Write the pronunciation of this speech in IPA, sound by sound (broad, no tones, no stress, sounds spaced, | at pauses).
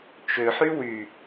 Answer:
t͡ʃ ø ħ y w y